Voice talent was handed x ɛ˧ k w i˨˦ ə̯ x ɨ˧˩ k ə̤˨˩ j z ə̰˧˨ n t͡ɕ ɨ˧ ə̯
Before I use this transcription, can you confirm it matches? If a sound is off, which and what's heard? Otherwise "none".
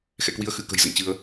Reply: ɛ˧ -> ɛ̰˧˨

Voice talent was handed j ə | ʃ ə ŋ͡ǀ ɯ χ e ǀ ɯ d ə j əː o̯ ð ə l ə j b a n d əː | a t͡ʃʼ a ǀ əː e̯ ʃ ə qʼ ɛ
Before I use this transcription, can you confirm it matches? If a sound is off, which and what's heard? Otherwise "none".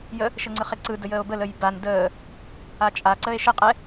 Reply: ð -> b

